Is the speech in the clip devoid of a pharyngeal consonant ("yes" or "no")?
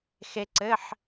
no